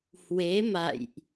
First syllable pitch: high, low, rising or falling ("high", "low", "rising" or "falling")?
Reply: rising